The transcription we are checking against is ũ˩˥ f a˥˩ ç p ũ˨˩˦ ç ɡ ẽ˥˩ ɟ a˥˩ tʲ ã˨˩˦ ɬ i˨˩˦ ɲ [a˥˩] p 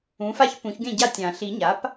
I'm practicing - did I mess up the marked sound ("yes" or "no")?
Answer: yes